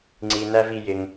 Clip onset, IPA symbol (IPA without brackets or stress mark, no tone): ŋ͡ǀ